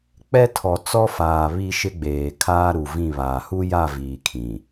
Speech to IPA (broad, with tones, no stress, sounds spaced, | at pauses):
k͡p ɛ˦ tʰ ɔ˨ t͡s ɔ˦ f aː˨ β i˦ ʃ ɪ˦ ɡ͡b eː˨ kʰ aː˦ ɾ u˨ v ĩ˦˨ β aː˨ h u˦ j a˦˨ v iː˨ kʰ ĩ˨